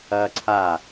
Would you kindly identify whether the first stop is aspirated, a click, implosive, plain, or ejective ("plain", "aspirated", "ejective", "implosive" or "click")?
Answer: click